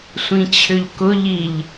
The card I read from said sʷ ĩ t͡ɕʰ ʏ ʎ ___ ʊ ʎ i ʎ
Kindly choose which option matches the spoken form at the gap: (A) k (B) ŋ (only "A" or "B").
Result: A